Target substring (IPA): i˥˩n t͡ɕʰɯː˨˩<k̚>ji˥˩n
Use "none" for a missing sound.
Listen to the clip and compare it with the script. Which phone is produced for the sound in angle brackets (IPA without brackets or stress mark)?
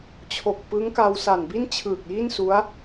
k̚